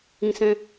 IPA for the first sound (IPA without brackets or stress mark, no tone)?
ĩ